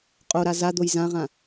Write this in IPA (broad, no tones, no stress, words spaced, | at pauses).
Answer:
qʼoɾa zad̪oj zãʁã